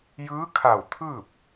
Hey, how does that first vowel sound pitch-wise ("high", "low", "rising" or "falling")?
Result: rising